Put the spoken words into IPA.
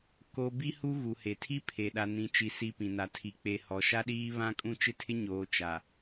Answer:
ko˦ bi˦hu˦ ɣu˨he˨tʰi˦ pʰe˨ ɗa˨nĩ˨t͡ʃi˨ si˦pĩ˨ na˨tʰi˨ k͡pe˨ hɔ˨ʃa˦ɗiː˦ βã˦kʼũ˦ t͡ʃɪ˦tʰɪ˦ ɲoː˨t͡ʃa˨

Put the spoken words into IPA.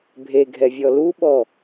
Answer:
bʱeɡʱɛvʲɔ luɓɔ

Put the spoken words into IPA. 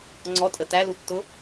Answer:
ŋ͡ǀɔtʼə tælutːʊ

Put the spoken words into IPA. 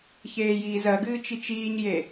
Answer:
çeːjiːzɜɡɨː t͡ʃit͡ʃiːɲje

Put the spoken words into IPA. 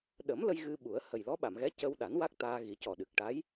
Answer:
ɗə˨˩˦m lə˧j ɣɨ˧ɓu˨˩˦ə̯ hə˨˩jlɔ˧˥ɓa˨˩˨mɣɛ˧˥ cə˧wɗa˨˩˦n wa˦˥k̚t̪aː˧ɣi˨˩˦ cɔ˨˩ɗɨ˨˩k̚ʈa˧˥j

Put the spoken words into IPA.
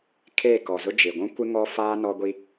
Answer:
kʰeː˦˨kɔ˨zʊ˦ d͡ʒɪ˨ɡʷũ˦kʷɪ˦ ŋɔ˦ faː˦nɔ˦ɡʷi˦

